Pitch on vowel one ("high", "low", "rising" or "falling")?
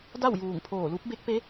falling